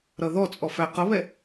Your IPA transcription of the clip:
ɾ ʌ ð ɔ t͡sʼ ɔ f æ q ʌ β ɛ

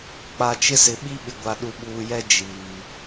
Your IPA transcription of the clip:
k͡p a˨ t͡ʃ ɪ˦ s ɪ˨ ɓ i˦ ɓ ɪ˨ ɡʷ a˨ ɗ u˨ ɓ uː˨ j ɛ˦ d͡ʒ iː˨

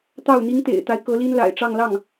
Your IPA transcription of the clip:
t̪ ɑ˥˩ ʊ̯ n̪ i˥ ŋ t̪ ḛ˨˩ ɪ̯ t̪ a˦ ɪ̯ k ɤ˧˥ l i˥ n l a̰˨˩ ɪ̯ ʈ͡ʂ ɑ˥˧ ŋ l ɑ˥˩ ŋ

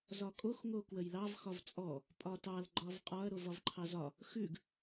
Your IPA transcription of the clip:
z ɒ kʼ o x ŋ o k w ə j l ɑ v x ɒ v t͡sʼ ɔ | pʼ ɒ t ɑ l ɡ͡ǃ ɒ v qʼ ɒ ɐ̯ ɾ o v ɒ v ǃʰ ɑ z ɒ | x ʉ ɡ

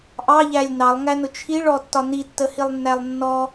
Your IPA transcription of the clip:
ʔ ɑ ʎ æ lʲ n ɑ lˠ ŋ æ n ʊ t͡ʃʰ i ɭ ɔ tː ɒ n i tː ə h i lˠ nː æ lˠ nː ɔ

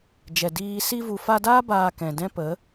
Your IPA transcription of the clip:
d͡ʒ ɛ˨ d iː˧ s i˧ v u˨ f a˧ d aː˦ b aː˧ k ɛ̃˨ d ɛ̃˦ p ə˨˦

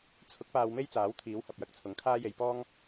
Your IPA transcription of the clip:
t͡sʰ ʊ˨˥ k̚ p aː˧ w m e˥ j t͡s aː˨˥ w t̪ʰ iː˨˥ w h ɐ˨ p̚ j ɐ˧ k̚ t͡sʰ ʊ˨˥ ŋ kʰ aː˥ j e˧ j p ɔː˥ ŋ

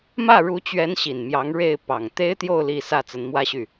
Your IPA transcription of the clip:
m ä˥˩ ɻ u˧˥ t͡ɕ ɥ ɛ˧˥ n ɕ i˨˩ n m j ɑ˧˥ ŋ ɻ e˥˩ ɪ̯ p ɑ˨˩ ŋ t̪ e˥ ɪ̯ t̪ j o˥˧ ʊ̯ l i˥˧ s ä˥˩ t͡s ə˧˥ n m w ä˥ ɕ y˥˩

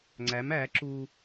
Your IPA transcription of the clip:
ŋ͡ǀ æ m æ ǁ u

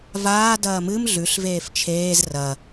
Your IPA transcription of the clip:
v aː d ɐː m ɨ m ɮ ʉ ɬ v eː f t͡ʃʰ eː z r ɐ

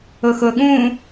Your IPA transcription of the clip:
ʊ x ʊ ɠ ũ

